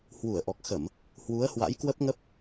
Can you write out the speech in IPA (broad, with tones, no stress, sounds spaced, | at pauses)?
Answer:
h w u˧˩ ə̯ ʔ ɔ˨˩ k̚ x ə˧˩˨ m | h w u˨˦ ə̯ h w a̰˧˥ j k w ə˦˥ p̚ ŋ ə˦˥ p̚